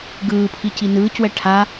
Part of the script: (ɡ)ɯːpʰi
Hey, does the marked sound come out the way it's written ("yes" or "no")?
yes